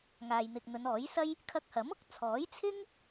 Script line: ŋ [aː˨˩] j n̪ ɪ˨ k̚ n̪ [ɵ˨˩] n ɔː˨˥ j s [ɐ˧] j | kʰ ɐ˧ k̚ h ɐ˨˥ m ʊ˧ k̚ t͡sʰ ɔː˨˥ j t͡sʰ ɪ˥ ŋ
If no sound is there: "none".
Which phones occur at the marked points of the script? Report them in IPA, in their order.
aː˨, ɵ˨˧, ɐ˥

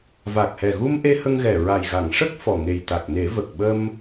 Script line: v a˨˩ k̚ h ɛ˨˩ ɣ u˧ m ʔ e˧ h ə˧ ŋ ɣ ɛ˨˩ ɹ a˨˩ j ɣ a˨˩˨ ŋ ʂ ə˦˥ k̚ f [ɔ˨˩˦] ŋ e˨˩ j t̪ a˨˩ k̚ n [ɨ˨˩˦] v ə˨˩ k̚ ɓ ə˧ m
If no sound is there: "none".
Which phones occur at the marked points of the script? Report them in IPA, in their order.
ɔ˨˩, e˨˩˦

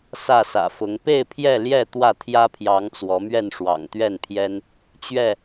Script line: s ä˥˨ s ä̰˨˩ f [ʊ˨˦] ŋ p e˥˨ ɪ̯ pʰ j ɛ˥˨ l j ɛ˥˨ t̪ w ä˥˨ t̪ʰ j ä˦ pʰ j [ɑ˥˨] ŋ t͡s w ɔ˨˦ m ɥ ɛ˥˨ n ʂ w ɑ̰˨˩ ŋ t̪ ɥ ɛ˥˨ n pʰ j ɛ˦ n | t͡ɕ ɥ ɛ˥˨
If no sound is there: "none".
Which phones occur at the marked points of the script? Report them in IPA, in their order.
ʊ˨˦, ɑ˨˦

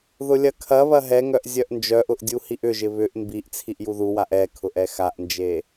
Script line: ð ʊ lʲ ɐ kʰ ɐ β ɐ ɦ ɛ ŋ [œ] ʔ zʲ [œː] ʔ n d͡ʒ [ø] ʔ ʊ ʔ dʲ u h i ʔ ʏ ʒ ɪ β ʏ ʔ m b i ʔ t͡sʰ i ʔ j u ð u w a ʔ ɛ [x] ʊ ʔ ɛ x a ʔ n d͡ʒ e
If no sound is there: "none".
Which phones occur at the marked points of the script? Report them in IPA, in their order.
œ, œ, œ, kʰ

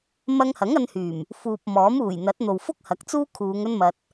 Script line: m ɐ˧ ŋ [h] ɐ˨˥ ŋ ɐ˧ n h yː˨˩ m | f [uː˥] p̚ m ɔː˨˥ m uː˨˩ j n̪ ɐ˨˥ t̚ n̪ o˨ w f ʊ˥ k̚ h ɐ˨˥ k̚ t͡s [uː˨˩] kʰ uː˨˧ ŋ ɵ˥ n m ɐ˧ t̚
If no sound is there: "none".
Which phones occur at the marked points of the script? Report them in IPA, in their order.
h, uː˨, uː˥

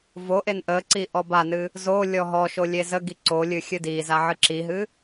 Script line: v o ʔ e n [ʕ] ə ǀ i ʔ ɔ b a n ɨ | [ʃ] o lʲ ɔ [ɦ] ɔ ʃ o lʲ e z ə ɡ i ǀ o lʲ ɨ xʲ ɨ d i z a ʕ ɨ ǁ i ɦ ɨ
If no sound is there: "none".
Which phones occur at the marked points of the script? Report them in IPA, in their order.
ʔ, z, ɦ

